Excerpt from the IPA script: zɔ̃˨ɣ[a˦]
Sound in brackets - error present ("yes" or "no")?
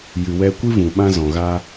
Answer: no